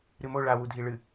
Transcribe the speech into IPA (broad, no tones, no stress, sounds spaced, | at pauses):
ɾ ɨ m o ɭ a w u dʱ i ɭ ɨ